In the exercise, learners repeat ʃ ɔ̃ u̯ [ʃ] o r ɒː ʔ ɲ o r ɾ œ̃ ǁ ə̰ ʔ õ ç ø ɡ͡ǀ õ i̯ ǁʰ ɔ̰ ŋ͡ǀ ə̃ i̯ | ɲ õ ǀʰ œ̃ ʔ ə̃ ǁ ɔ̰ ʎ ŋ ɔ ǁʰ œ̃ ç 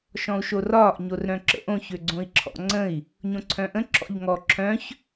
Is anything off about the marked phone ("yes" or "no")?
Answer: no